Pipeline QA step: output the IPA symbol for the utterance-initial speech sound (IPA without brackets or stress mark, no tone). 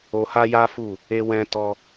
o